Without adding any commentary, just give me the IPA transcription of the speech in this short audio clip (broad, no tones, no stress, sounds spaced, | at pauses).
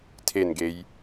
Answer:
tʰ e n ɡ e j